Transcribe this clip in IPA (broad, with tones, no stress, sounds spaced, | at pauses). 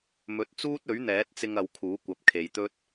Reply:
m ɵ˨˥ t̚ t͡s uː˥ t̚ ɵ˨˥ ɥ n̪ ɛː˨˥ t̚ t͡s ɪ˧ ŋ ɐ˨˧ w kʰ uː˨˥ kʷ ɐ˨˥ p̚ kʰ e˨ j t̪ ɵ˥ t̚